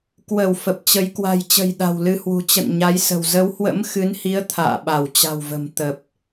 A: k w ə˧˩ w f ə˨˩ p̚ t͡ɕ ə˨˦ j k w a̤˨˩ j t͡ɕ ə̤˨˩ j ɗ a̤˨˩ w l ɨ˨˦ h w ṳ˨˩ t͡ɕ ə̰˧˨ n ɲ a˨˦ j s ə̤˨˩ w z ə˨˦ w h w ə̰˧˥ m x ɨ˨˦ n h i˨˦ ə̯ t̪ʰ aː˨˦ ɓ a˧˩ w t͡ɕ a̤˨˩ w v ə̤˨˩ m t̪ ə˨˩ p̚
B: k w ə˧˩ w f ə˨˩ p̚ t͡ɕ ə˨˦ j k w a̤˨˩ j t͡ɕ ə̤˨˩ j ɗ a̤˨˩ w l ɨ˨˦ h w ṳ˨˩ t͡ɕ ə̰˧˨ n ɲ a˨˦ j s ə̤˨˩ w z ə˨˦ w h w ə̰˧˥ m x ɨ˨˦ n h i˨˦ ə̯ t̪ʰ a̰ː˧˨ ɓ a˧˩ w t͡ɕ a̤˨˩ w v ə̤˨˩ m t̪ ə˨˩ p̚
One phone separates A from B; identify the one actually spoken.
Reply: B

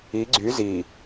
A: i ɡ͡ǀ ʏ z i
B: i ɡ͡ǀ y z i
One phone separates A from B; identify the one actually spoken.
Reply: B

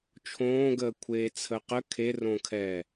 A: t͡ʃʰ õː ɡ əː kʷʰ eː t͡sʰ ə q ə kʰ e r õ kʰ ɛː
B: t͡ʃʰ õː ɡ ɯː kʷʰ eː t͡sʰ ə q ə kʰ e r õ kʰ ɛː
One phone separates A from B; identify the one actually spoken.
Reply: A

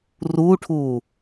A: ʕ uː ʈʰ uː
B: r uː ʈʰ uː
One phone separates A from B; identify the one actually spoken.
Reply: B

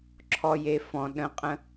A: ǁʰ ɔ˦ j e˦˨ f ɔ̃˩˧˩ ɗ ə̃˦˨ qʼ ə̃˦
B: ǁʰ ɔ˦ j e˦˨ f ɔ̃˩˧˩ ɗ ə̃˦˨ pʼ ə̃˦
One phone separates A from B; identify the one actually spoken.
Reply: A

